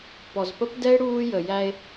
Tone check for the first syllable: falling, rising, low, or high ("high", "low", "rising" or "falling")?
low